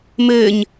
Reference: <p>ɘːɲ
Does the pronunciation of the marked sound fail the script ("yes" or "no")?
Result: yes